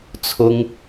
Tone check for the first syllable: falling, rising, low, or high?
high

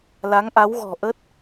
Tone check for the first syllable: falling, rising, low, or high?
rising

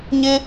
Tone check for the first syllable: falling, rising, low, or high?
high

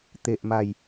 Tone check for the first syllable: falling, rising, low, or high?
low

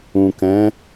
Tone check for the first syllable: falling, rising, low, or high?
low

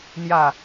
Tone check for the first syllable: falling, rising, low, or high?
falling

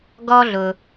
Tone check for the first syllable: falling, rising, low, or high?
high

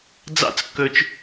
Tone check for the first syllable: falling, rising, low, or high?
falling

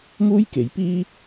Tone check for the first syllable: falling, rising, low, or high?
high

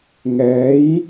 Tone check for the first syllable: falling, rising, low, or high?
rising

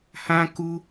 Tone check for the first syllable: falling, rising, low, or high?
high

